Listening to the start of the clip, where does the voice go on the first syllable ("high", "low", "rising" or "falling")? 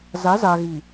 rising